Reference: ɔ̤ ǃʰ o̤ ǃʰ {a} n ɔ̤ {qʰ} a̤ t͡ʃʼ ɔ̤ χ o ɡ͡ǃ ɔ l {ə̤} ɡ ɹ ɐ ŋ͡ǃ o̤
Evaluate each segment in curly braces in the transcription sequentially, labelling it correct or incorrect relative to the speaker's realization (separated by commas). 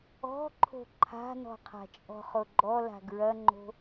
incorrect, correct, incorrect